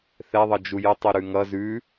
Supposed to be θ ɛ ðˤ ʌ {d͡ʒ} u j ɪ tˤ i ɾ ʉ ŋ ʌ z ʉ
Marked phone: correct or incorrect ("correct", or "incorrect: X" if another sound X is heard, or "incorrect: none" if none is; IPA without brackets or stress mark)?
correct